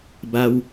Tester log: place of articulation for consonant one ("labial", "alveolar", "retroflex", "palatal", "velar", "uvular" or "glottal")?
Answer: labial